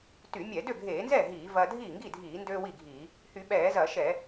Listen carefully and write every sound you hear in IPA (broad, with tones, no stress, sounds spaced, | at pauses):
t y˧˩˧ mʲ ɛ˧˩˧ d ø˥˩ ɡʱ eː˧˩˧ n z ɛ˥˩ ɦ iː˧˩˧ v ɐː˧ dʱ iː˥˩ ŋ ɡ i˥˩ dʱ iː˧˩˧ n d øː˧ w i˥˩ ɡʱ iː˧˩˧ | h y˧˩˧ ɓ ɛː˧˩˧ z ɐː˧˩˧ ʃ ɛ˧˩˧